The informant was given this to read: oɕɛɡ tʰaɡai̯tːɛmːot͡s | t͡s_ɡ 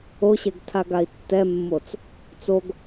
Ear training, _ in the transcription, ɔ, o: o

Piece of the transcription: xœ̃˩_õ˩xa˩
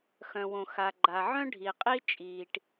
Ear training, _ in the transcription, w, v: w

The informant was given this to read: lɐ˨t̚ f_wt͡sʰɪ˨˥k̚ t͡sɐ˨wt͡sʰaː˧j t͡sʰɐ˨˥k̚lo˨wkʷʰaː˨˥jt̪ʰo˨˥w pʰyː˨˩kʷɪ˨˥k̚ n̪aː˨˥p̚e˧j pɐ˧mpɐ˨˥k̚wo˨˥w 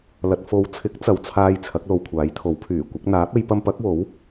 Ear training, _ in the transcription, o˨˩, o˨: o˨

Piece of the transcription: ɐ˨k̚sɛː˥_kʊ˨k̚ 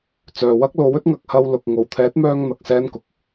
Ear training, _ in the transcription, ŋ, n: n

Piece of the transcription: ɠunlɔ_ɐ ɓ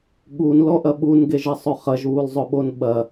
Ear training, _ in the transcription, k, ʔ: ʔ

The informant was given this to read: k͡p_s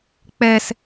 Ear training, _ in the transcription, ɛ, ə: ɛ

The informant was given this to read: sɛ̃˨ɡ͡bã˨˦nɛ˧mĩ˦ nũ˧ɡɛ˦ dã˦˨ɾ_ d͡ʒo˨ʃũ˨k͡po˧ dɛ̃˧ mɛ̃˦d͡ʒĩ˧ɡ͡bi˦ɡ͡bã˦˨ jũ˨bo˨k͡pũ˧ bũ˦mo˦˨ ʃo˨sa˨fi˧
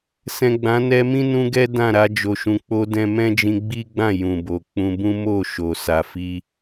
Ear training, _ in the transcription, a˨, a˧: a˧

